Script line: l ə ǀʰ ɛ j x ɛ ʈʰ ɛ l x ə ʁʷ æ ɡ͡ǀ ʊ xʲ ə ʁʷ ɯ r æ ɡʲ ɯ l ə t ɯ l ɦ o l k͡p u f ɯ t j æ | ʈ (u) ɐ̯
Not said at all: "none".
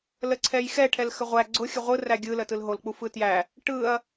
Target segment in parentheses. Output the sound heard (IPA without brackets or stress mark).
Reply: ɯ